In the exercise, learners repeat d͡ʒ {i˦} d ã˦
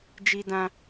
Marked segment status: correct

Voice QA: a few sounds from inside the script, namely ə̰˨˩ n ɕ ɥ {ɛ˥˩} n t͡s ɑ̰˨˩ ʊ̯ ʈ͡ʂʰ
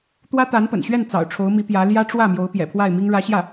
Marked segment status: correct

